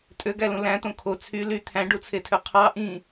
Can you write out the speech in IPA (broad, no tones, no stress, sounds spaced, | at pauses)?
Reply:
tʼ ø ɡ æ l ũ l æ̃ t̪ õ kʰ o t͡sʰ y l y t̪ʰ æ̃ ɖ u t͡sʰ e tʰ ø qʰ ɑ ʔ ĩ